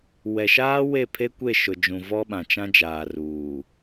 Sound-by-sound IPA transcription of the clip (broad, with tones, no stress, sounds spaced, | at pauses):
w ɛ˨ ʃ aː˦ w e˦˨ pʰ e˦ kʷ e˦˨ ʃ ʊ˨ d͡ʒ ũ˨ v ɔ˦ ɓ ã˨ t͡ʃ ã˦ d͡ʒ aː˨ r uː˨